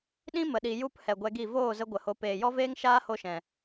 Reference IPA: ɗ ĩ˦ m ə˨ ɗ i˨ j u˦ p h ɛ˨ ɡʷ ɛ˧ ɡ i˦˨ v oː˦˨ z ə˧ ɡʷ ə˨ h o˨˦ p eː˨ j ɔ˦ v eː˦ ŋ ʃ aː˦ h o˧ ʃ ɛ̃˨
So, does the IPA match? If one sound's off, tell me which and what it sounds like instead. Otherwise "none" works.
none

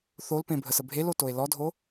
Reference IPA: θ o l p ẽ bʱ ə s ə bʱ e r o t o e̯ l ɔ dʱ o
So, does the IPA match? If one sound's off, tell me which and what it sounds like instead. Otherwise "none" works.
r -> l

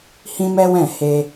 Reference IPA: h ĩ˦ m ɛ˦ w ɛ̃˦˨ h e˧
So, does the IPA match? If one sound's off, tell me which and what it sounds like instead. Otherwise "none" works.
none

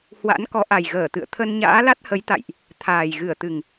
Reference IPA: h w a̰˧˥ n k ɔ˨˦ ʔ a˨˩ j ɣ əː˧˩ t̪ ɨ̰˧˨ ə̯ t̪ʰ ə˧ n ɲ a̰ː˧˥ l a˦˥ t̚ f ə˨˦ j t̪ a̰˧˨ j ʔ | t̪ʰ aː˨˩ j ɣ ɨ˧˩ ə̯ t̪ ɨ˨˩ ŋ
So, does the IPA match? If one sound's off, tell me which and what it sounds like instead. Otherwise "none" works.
f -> h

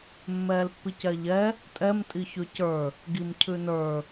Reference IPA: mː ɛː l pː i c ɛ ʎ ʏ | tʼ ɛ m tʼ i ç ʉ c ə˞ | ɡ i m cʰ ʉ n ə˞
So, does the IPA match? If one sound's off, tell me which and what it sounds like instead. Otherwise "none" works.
ʏ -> ɛ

